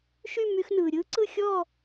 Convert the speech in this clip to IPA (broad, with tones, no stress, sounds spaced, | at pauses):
ʃ y˥˧ m y˥ x n ɯː˧ ɾʲ ɯː˥ ǀ ɯ˥˧ xʲ ɔː˥˧